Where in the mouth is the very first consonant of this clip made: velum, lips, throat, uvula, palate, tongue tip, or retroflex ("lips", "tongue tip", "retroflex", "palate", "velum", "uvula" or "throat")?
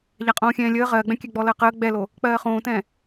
palate